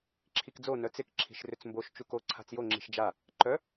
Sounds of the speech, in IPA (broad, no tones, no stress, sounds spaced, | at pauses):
ǁʰ i k d͡z o n œ t͡s ɪ k ǁʰ i̤ ʃ r ʏ t͡s m b o ʃ t͡ʃ u k o ǀʰ a̤ t͡s j o ŋ͡ǁ i̤ ʃ d͡ʒ a | ǃ œ